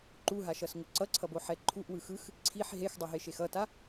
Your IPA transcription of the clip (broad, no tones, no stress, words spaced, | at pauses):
ǃuɦaʃʌsŋo ǀʌǀʰʌboħɛ ǃʰuʔwɯ xɯx | ǀʰiħ ɦexdˤʌɦeʃex ʌta